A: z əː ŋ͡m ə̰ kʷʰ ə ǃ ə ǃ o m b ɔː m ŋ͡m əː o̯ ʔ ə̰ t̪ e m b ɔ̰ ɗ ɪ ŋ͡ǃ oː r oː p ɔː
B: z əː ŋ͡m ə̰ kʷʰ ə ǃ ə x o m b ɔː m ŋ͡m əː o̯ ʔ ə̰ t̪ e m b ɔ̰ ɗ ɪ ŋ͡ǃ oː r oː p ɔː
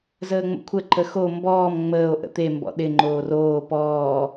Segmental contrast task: B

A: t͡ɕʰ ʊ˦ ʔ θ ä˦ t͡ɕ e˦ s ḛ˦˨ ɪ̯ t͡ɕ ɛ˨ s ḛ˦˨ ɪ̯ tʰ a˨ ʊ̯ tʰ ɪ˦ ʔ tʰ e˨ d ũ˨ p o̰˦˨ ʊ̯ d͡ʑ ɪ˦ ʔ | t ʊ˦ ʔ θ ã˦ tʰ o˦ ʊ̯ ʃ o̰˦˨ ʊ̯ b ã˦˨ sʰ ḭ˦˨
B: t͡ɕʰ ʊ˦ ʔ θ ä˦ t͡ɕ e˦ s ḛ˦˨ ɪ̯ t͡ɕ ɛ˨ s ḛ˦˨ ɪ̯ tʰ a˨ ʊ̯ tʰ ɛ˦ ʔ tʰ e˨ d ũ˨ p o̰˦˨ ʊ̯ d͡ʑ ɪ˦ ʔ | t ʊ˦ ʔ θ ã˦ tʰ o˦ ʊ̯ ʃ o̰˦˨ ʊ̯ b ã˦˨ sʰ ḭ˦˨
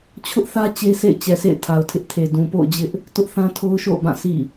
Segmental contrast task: A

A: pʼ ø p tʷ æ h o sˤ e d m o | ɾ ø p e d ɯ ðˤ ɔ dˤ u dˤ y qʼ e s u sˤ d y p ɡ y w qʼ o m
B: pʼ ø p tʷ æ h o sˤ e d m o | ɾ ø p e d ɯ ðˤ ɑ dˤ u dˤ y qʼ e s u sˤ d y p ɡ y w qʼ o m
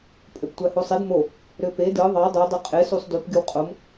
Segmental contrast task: B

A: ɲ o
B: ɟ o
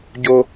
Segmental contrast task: B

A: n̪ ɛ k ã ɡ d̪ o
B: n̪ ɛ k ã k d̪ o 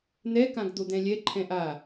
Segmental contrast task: A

